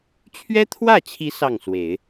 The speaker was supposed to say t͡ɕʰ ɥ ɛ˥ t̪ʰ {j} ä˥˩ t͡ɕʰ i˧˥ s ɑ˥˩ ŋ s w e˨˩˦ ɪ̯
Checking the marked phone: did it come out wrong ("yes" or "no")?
yes